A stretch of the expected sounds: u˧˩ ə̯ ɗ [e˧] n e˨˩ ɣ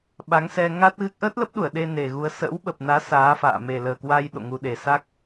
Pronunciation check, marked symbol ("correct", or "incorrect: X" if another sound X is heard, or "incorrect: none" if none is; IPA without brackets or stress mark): correct